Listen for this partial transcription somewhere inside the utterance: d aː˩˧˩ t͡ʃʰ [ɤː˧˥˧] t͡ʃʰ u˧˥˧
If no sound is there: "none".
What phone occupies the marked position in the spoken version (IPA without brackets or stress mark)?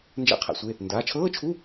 ɤː˧˥˧